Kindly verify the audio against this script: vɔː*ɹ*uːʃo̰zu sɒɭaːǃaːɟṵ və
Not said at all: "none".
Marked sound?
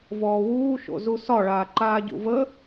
w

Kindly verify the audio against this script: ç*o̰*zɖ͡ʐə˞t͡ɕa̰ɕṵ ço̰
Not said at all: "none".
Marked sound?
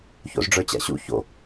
o̰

